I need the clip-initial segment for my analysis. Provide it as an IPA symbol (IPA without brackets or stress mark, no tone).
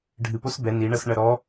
ɖʱ